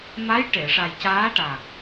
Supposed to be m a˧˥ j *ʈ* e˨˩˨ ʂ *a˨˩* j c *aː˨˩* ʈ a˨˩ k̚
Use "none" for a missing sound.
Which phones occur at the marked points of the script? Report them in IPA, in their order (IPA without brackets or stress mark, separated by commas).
ʈ, a˨˩, aː˧˥